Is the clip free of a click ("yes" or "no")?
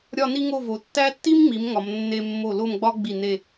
yes